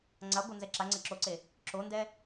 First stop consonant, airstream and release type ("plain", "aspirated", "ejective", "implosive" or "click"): click